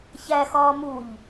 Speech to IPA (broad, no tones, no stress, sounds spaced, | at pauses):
ç æ x ɒː m u ʎ